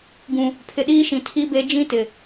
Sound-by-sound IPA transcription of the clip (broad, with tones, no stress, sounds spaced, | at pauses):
ɡ ũ˨ | pʰ ɪ˨ ɗ iː˦ ʃ ĩ˨ tʰ i˦ b e˦ d͡ʒ ĩ˦ t ɪ˨